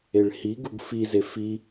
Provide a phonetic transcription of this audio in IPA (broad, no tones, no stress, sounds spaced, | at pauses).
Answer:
e ɭ h i ɡ u ɡ f i z e f i